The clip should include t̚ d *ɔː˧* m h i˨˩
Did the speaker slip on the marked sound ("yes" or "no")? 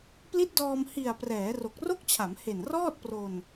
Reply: no